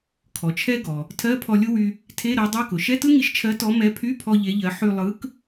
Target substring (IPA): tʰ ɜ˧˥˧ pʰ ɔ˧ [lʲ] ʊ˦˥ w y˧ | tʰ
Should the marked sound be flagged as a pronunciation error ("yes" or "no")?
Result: no